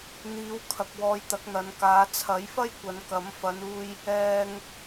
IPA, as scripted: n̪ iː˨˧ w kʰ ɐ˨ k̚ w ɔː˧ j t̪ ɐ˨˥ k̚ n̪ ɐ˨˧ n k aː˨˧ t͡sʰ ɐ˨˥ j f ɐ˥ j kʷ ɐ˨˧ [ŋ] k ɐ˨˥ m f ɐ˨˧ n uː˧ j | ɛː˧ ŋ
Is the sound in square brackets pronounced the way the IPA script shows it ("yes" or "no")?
no